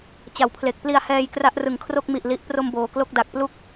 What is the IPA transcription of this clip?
t͡ɕa˨˩wpʰle˨˩k̚pli˧a̯hɛː˧j kra˦˥ʔrɯ˨˩ŋkʰro˥˩k̚mi˨˩ʔ li˨˩ʔpro˧m boː˩˦klo˥˩k̚da˨˩k̚plu˥˩k̚

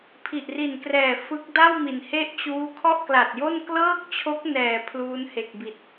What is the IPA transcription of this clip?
pʰi˨˩ʔri˨˩nkrɛː˨˩ fɯ˦˥k̚ da˥˩wmi˩˦n he˥˩ʔt͡ɕuː˦˥ kʰɔ˥˩ʔkla˨˩t̚jo˥˩n klɤː˥˩k̚t͡ɕʰo˦˥k̚ nɛː˨˩ pʰluː˦˥nhe˨˩k̚bi˨˩t̚

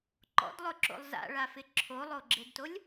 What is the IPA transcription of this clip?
ǃɔ̰dlˠʊǁo̰lˠ za̰ɭafɪ ǁʰolˠoɡ͡ǁedtolʲ

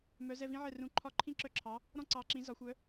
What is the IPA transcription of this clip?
mœ˩˥ zɛ˥˩vĩ˥ʕɛ˥˩ rũ˩˥ ǃʰɒ˥˩ǃʰĩ˥ǁœ˥˩ǁʰɑ˩˥ | ɾɔ̃˥ǀɑ˩˥ǁĩ˩˥ zɒ˩˥xʷœ˩˥

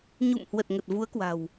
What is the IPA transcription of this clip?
ɲṵ˧˨mhwə˨˩t̚ ŋə˨˩t̚vu˨˦ə̯kwa̤˨˩w

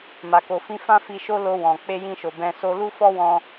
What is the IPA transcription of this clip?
ma˨ko˨fĩ˧ fã˦fi˧ʃo˦lo˧ wɔ̃˨ k͡pe˧jĩ˧ʃo˨ bɛ̃˧so˦ lu˦fɔ˦wɔ̃˧

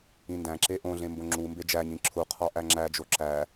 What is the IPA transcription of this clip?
ĩndæ̃ǁe ʔõɮẽ mbõŋ͡ǁumbe d͡ʒæɲĩ ǁʰuqʰɒ ʔæŋ͡ǁæd͡ʒo ǁæ

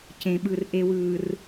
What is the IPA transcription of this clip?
cẽ˨ɓɯ˨r ʔe˨wɯː˨r

